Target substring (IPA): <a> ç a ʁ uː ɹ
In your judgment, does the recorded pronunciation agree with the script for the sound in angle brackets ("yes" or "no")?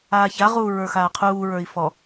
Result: no